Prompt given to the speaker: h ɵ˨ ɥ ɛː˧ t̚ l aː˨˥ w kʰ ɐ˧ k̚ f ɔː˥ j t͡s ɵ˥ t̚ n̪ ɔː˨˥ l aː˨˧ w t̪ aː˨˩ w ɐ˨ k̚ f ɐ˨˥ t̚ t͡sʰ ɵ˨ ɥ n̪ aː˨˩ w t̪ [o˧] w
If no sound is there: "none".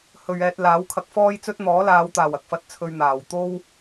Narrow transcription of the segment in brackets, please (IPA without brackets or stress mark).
o˥